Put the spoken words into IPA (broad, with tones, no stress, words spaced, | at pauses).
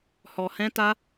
hɔ˧hɛ̃˦ta˦